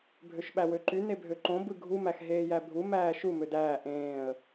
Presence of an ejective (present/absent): absent